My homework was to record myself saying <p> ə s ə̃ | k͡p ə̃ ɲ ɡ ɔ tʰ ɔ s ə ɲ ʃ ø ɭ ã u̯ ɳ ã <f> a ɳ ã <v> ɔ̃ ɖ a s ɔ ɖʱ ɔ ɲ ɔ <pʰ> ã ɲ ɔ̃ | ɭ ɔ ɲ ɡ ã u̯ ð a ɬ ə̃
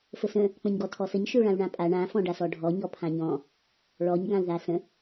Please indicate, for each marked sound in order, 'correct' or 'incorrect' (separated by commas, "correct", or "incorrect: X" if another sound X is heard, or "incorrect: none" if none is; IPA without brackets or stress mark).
incorrect: f, incorrect: pʼ, incorrect: f, correct